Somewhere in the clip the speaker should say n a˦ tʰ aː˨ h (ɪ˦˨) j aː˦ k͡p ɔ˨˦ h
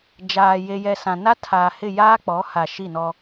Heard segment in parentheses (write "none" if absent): ɪ˦˨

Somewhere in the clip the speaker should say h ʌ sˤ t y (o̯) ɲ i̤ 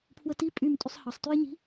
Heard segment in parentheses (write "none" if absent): e̯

